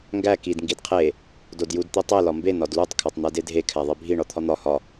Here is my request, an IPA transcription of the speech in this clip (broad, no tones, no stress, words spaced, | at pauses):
ŋɡæ kid ŋɡidqʰe | dodjud t̪itˤe lɒmbe nɒdlutˤ kʰætˤn̪ædedʱe kʰæðˤibʱi ɳɒt̪ʰɒn̪ɒ hɒ